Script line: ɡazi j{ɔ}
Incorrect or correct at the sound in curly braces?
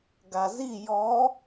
correct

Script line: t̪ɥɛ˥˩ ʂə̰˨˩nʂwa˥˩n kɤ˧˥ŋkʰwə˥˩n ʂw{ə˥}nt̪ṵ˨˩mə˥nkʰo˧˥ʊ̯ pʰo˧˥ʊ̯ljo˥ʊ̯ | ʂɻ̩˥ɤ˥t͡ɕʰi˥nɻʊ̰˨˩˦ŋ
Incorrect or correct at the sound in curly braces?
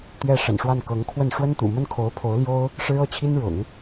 correct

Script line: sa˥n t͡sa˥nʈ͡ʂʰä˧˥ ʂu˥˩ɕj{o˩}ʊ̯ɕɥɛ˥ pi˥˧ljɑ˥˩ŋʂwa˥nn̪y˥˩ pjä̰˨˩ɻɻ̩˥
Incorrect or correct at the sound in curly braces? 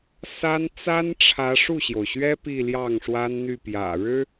correct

